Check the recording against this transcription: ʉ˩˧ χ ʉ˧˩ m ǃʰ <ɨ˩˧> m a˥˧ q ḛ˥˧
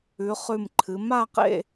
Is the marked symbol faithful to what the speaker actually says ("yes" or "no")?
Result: yes